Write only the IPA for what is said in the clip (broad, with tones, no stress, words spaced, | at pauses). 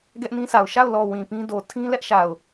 ɡɛ˦ʔnĩ˦sʰa˨ʊ̯ ʃa˦˨ʊ̯lɔ˨ wĩ˨pĩ˦do˨ tʰĩ˦lɛ˦ʔʃa˨ʊ̯